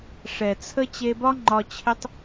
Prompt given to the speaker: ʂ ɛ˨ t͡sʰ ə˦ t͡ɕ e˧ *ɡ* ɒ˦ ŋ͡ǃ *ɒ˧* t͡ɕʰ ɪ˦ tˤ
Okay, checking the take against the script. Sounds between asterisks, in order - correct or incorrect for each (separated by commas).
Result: incorrect, correct